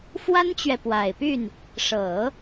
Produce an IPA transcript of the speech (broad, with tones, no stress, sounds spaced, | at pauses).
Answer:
f w a˥ n t͡ɕ ɥ ɛ˨ p w a˨˩ ɪ̯ p y˥˩ n | ʂ ɤ˨˩˦